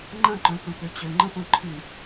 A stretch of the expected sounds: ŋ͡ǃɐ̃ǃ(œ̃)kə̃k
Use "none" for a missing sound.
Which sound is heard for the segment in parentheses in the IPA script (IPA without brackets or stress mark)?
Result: œ̃